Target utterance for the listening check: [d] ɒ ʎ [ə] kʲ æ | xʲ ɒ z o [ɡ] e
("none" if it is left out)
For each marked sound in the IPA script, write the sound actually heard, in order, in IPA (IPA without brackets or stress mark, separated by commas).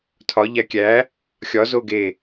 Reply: tʰ, æ, ɡ